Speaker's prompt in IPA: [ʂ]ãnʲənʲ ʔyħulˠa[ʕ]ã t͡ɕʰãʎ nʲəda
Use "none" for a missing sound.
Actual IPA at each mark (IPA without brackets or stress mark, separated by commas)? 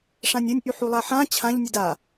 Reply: ʂ, ħ